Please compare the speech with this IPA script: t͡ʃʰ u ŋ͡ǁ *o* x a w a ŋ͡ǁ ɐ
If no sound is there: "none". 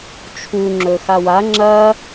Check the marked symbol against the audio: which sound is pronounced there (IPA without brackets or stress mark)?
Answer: ɵ